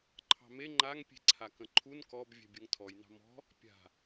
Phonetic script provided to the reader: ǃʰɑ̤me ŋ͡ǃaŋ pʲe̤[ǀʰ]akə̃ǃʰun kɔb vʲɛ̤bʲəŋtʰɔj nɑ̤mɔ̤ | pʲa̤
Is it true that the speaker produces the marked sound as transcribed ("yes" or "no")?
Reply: yes